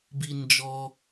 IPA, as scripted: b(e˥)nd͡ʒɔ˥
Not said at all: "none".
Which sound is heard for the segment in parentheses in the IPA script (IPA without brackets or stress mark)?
i˥